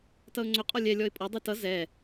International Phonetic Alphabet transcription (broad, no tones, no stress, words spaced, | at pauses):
tʌʊ̯ŋ͡ǀɵ qʼɔlʲɛ lʲɔɪ̯pʼɔ dˤitʌ zɛ